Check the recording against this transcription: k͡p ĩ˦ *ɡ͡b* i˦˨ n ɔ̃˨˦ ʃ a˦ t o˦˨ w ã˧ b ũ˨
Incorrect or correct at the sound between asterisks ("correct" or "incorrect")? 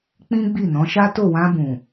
correct